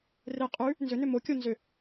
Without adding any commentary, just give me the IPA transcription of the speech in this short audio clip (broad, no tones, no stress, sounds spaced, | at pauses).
r e qʼ ʉ | n z ʏ n ʏ m o kʲ o n z ʏ